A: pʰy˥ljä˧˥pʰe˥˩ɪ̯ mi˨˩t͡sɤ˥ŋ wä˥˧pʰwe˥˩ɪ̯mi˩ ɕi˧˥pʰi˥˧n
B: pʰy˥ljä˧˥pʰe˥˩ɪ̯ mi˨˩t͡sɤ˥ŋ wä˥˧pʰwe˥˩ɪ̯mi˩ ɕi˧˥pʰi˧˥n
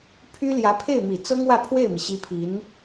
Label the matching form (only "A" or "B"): B